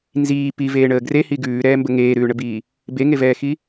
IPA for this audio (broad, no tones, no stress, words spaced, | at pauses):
nziː piveːɳəː ɡrehi ɡʉːɾɛːmbə ŋeːɾʉːɳəbiː | beŋevɛːxi